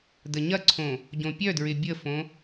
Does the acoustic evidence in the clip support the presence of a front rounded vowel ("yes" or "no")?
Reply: yes